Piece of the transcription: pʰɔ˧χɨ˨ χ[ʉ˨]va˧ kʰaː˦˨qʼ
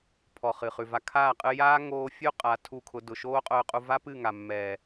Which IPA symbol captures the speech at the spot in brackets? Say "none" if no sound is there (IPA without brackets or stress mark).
ʉ˨